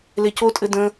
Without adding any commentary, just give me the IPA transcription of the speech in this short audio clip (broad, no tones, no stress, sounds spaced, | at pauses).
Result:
l e c o tʼ ɘ d ə̃